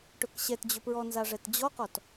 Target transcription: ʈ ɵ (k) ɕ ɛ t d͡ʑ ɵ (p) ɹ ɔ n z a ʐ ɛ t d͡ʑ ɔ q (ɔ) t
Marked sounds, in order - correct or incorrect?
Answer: correct, correct, correct

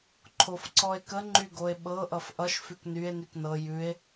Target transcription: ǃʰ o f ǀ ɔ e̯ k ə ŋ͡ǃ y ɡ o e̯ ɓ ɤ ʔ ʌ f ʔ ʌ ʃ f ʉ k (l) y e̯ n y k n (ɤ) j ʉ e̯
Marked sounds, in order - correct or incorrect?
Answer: incorrect: n, correct

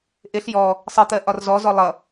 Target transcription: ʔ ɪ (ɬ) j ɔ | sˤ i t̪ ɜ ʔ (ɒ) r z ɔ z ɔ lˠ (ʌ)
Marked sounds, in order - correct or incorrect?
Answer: correct, correct, correct

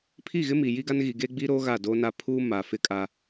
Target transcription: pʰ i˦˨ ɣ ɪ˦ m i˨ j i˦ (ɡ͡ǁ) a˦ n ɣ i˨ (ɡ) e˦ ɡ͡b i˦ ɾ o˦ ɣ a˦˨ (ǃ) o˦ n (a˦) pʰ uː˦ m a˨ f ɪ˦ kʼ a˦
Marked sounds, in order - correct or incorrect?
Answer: incorrect: ɡ, correct, incorrect: d, correct

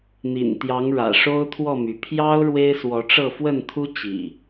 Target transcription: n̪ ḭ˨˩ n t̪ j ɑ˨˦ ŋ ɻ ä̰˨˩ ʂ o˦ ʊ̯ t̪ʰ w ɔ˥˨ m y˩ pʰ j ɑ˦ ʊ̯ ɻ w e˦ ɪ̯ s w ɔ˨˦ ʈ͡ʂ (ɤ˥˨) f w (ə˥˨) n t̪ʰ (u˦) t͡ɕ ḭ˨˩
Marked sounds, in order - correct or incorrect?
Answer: correct, correct, correct

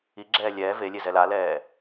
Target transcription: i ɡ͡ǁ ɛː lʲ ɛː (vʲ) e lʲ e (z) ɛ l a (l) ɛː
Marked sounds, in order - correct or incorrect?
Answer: incorrect: v, correct, correct

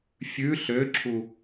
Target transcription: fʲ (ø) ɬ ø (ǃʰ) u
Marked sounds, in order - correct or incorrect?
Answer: incorrect: ʉ, incorrect: ǁʰ

